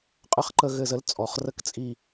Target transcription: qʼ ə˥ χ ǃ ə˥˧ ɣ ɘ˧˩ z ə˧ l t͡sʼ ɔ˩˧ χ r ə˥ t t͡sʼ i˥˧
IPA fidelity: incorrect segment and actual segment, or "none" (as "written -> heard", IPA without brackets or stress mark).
t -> k